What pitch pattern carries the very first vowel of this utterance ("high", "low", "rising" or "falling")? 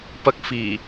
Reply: high